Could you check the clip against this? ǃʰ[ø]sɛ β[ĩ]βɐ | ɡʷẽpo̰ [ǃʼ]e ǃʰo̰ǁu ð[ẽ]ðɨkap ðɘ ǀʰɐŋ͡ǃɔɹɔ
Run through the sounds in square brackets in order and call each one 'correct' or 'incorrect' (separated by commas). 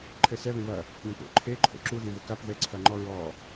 incorrect, incorrect, incorrect, correct